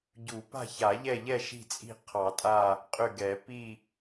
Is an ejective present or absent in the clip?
present